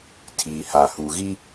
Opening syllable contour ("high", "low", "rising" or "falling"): low